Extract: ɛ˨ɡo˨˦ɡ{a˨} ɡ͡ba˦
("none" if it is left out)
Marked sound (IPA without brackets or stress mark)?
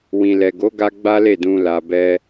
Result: a˧